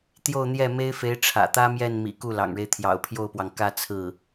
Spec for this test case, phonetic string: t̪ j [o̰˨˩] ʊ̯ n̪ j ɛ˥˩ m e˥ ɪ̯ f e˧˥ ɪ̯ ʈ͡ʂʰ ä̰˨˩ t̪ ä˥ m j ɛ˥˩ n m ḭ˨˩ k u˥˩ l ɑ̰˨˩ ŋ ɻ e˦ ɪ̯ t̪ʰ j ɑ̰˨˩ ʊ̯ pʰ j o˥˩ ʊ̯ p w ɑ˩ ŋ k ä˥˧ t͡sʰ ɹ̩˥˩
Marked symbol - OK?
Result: no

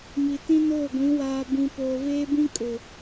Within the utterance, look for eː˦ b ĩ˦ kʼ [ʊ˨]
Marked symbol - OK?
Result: yes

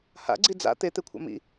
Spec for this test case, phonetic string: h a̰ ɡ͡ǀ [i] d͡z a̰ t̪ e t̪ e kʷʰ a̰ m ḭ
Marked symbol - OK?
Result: yes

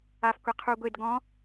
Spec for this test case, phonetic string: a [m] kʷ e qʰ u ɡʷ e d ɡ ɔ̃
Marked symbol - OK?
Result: no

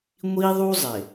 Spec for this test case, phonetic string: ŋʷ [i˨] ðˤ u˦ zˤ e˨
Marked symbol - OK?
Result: no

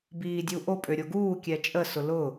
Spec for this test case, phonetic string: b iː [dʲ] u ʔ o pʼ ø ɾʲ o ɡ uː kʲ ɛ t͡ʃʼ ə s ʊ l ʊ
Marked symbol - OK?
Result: yes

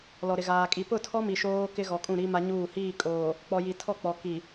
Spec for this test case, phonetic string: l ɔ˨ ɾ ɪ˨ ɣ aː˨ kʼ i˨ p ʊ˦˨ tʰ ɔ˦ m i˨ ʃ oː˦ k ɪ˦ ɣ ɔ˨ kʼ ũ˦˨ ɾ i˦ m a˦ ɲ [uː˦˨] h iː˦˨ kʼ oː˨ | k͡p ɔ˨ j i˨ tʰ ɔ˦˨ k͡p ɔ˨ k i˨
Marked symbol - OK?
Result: yes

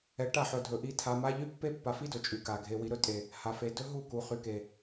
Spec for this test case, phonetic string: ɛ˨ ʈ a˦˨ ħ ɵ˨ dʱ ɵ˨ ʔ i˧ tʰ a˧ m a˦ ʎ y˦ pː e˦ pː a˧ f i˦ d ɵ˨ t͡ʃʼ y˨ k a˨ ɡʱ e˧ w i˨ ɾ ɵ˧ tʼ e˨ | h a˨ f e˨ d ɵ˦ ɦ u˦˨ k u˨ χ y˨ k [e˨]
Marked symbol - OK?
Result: yes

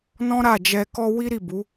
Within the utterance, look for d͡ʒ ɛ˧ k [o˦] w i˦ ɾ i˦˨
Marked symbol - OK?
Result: no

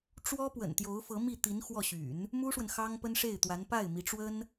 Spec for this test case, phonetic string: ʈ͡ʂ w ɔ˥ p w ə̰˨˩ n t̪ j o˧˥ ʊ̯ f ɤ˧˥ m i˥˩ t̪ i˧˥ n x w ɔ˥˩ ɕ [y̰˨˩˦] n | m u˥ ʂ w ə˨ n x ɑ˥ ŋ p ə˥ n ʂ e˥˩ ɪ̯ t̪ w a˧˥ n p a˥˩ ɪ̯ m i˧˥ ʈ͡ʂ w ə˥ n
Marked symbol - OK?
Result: yes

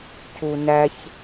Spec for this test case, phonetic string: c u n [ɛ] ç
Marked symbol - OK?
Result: no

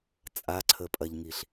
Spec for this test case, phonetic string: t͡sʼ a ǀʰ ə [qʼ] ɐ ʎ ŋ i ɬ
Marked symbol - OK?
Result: no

